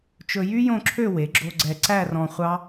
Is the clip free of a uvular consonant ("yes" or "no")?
no